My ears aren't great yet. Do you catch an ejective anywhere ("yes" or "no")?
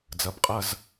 yes